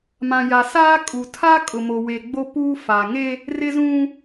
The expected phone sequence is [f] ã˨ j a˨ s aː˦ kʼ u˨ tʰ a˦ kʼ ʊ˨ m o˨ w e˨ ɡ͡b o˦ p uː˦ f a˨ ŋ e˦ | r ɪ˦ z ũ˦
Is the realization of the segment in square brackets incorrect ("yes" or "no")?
yes